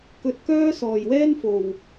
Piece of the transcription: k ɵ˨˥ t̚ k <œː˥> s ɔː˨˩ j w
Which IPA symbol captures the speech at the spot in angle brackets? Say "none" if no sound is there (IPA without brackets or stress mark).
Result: œː˥